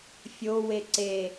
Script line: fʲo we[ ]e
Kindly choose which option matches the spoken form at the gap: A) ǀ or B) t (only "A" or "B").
A